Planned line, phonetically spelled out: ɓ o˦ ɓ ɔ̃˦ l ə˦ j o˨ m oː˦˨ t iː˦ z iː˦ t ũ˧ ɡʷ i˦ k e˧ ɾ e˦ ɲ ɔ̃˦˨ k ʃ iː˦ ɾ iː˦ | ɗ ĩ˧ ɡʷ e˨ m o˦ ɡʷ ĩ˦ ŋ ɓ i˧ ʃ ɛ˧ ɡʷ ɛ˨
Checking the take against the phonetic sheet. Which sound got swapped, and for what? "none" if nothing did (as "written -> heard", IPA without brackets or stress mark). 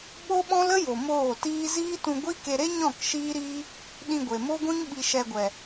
none